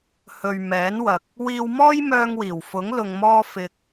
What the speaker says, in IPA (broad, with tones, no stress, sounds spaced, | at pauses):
h ɵ˨ ɥ m ɛː˨˥ n w ɐ˨ k̚ | w iː˧ w m ɔː˥ j m œː˧ ŋ w iː˨˩ w f ʊ˨˥ ŋ l ʊ˧ ŋ m ɔː˥ f ɪ˧ k̚